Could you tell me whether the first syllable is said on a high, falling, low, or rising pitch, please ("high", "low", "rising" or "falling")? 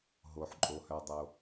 low